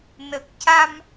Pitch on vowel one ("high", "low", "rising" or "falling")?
low